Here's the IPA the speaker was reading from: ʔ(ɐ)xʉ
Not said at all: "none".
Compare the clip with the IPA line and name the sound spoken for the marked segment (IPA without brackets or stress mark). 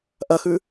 ɐ